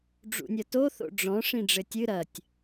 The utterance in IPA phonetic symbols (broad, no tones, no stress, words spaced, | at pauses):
ɖ͡ʐṵnʲɐto θo̰ɖ͡ʐɔ̃ ʂĩɖ͡ʐɘtʲɨ ɾɐtʲ